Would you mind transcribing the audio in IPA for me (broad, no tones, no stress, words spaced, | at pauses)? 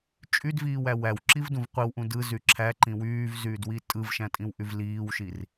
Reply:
t͡ʃʼydviːwæ wæwǁivdũv qʷiwʔũ dɯzy ǁʰæǃĩ wyːvzyːdwi tʼɯvʃæ̃tʼĩwʔyv liːwʃir